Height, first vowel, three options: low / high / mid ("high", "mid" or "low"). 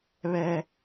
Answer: mid